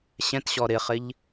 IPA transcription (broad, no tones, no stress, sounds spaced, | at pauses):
ɕ ɛ̃ t ɕ ɔ ɾ ɪ χ ɪ ʎ